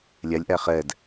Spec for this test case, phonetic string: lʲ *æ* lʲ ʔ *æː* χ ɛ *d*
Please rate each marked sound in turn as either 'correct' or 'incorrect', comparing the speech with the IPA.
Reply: correct, incorrect: æ, correct

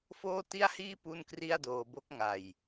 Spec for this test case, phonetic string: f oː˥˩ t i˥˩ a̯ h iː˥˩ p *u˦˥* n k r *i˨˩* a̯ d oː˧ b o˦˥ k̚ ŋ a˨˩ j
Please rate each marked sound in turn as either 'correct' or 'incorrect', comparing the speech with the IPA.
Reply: incorrect: u˥˩, incorrect: i˥˩

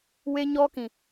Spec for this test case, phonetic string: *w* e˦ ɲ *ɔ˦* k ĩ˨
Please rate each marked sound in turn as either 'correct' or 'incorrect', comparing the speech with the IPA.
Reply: correct, correct

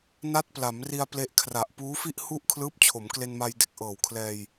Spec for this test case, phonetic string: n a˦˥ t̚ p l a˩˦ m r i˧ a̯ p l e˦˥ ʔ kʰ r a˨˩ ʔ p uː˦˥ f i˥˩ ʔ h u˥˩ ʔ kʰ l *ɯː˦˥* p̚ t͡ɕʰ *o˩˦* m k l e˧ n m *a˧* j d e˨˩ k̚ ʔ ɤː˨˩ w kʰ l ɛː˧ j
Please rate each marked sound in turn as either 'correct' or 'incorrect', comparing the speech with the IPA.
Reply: correct, correct, correct

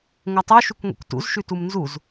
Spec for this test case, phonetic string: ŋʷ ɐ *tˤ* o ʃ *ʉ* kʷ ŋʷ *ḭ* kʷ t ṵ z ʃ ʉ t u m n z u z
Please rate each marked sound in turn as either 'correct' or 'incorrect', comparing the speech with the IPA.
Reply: correct, correct, correct

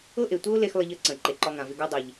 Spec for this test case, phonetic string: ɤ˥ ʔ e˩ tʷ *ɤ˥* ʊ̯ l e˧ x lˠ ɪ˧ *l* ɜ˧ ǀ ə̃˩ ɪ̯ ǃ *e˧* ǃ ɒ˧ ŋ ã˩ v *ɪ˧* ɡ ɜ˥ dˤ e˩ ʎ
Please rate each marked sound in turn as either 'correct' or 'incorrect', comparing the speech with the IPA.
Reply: correct, incorrect: ʎ, incorrect: e˩, correct

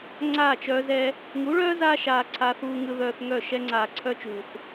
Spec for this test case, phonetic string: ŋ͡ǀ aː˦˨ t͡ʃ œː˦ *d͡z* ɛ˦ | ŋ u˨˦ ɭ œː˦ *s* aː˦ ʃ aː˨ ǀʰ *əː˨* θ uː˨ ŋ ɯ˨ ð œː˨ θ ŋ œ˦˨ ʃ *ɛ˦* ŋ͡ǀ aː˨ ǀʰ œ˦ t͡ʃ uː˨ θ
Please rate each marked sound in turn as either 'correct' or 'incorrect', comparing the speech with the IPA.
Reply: incorrect: z, incorrect: z, incorrect: aː˨, correct

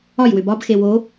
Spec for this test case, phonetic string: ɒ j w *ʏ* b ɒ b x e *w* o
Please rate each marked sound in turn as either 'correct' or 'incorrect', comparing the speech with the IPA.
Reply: correct, correct

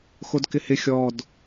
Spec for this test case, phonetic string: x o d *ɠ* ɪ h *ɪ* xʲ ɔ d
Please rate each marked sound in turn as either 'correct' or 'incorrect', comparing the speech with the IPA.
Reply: incorrect: k, correct

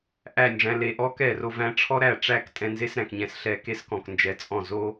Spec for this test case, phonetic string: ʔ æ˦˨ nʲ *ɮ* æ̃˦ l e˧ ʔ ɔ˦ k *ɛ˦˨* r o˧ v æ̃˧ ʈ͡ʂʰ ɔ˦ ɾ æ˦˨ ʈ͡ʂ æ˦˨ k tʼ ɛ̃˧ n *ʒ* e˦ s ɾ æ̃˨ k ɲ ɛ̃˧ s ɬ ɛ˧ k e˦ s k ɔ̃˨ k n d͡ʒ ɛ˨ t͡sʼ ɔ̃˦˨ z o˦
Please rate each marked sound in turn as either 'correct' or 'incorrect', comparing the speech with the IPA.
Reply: incorrect: ʐ, correct, incorrect: z

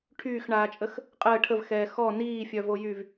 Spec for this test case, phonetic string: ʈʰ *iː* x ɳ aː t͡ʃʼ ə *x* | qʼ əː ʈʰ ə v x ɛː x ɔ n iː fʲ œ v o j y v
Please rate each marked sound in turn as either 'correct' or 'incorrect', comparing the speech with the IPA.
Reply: incorrect: yː, correct

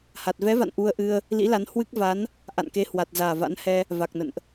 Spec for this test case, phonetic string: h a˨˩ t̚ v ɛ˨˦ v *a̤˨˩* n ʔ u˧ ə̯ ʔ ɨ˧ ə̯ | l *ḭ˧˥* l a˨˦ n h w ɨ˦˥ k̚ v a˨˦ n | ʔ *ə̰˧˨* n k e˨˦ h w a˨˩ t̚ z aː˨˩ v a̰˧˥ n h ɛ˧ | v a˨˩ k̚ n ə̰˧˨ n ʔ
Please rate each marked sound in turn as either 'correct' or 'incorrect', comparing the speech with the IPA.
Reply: incorrect: a̰˧˨, correct, incorrect: a̰˧˨

